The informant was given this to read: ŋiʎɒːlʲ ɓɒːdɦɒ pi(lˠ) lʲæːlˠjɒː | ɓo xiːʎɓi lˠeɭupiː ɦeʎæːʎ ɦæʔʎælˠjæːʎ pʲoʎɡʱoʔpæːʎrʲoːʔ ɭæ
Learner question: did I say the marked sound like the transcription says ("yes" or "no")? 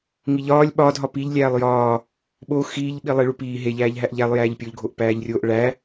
no